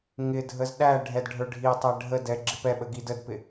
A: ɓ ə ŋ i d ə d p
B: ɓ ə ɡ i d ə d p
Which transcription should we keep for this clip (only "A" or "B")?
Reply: B